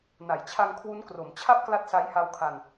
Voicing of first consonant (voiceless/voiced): voiced